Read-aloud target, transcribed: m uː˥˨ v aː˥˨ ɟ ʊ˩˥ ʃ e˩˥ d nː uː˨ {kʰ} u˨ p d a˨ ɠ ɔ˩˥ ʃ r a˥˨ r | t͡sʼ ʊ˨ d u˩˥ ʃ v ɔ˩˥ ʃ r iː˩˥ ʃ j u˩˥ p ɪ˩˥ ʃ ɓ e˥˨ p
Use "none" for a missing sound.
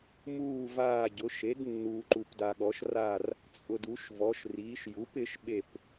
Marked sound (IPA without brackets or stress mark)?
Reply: ǃ